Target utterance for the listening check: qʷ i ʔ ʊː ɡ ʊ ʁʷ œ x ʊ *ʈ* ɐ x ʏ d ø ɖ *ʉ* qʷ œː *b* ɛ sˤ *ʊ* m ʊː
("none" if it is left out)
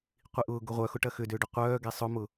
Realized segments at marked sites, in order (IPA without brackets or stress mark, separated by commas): ʈ, ø, ɡ, ʊ